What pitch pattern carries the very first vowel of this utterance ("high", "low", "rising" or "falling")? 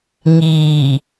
low